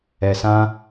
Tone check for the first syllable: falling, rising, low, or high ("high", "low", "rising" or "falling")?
low